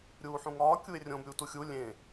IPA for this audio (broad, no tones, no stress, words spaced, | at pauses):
ɾʲuːħũŋɒː kʲuɪ̯rʲõb ɾʲuːtuxʲu lʲẽ